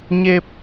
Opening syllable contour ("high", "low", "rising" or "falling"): low